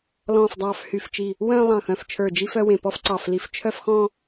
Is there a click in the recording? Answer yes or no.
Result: yes